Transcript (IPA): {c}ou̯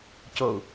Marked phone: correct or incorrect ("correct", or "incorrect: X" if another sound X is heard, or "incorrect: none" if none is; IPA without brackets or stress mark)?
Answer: correct